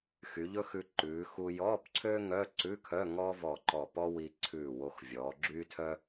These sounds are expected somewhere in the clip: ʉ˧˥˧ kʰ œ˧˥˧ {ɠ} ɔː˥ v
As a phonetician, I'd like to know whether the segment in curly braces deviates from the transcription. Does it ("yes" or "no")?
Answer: yes